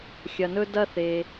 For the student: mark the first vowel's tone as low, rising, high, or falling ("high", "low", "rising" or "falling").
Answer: low